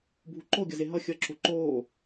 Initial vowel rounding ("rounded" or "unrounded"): rounded